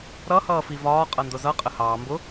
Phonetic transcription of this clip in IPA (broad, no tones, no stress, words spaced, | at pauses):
ɾʌhʌː fivɒː qʼʌndʊzʌ qʼəhɑː mbʊ